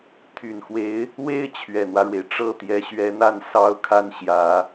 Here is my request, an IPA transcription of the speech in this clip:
t̪ʰy˨˩nxwe˧˥ɪ̯ | we˥ɪ̯ t͡ɕʰɥɛ˨˩n̪wä˦ɻwe˩ɪ̯ ʈ͡ʂɤ˥˩t̪jɛ˧˥ɕɥɛ˧˥n̪a˥˩n sɑ˥ʊ̯kʰa˥˩nɕjä˨˩˦

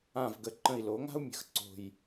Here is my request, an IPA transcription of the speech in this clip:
ã˧˩v ɡə˧˩ ǃə̃˧˩i̯lo˩˧ŋa̤˥u̯ mʲə̤˩˧x ǀo̤˧˩j

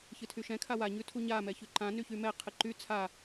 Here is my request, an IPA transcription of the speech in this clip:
çɨtʰyʃɛ̃ kʰawa ɲʉtʰuɲa mɛçʉǃã nyçymɛ qʰɨǃy t͡sʰa

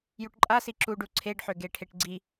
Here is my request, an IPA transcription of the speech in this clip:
juʈǃʼasi ǁuɖu ǀʰeɖħøɡeʈʰeʈ ɡ͡ǀi

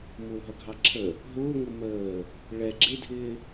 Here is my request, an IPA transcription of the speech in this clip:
mʊːɦʌɡʱɑǁʰə | ɦʊːŋʊ məː | ɭɛ ɡ͡ǁɪdʱɪː

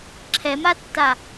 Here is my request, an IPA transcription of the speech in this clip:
ǁʰɛmatːa

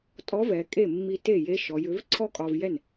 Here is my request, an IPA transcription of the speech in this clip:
tʼɔ˧˥vɛ˩˧ kʼe˥˩mːi˧ te˥˩je˧˥ʃɔ˩˧jʏ˩˥v ǀʰɔ˥kʼɒ˧vjɛ˥˩n

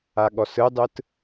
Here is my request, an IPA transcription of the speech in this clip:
aɠɔsɯdˤɯt

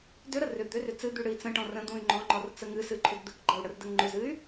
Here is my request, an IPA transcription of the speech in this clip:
dʏɾə rʏ d̪ʏrʏ t͡sɨd̪y ɽɨi̯t͡sə̃ʈɔ̃ rə̃d̪ũy̯ ŋ͡ǃɔ̃ŋ͡ǃɔr t͡səŋɨsɨ ǃʰʏdd̪ɨkɡ͡ǃʌu̯ ɽərdəŋŋ͡ǃʏzɨy̯

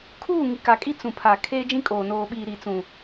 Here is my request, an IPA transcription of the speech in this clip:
kʰuː˦˨ ŋi˨ka˨kʼi˦ t͡sũ˨pʰa˨ kʰeː˦d͡ʒĩ˦kʼoː˨ noː˨ɓiː˨ ɾi˨t͡sũ˨

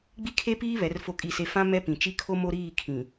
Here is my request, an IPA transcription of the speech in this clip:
ɡ͡bi˦kʰe˦piː˦ βɛ˨˦rfo˦kʼi˦˨se˦ fã˦ mɛ˦pĩ˨ t͡ʃi˦kʰo˦mo˦ɾiː˦˨ kʰĩ˨

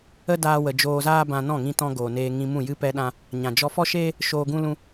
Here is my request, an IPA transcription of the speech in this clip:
ə˦daː˧wə˨ d͡ʒoː˧zaː˦bã˧ nɔ̃˦˨ŋĩ˧tɔ̃˧ ɡoː˨neː˧ ŋĩ˧mũ˦˨jɨ˦ pɛ˦ɗã˦ | ɲã˨d͡ʒɔ˧ fɔ˦ʃeː˦ | ʃoː˧ɡũ˦lũ˦

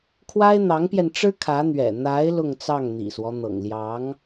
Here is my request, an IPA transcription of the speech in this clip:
kʰwa˥ɪ̯n̪ɑ˧˥ŋpjɛ˧nʈ͡ʂɻ̩˥ kʰä˧˥n̪ɥɛ̰˨˩ n̪a˧˥ɪ̯ lʊ˥˧ŋt͡sɑ˥˩ŋn̪ḭ˨˩swɔ˦ n̪ɤ̰˨˩ŋljɑ˧˥ŋ

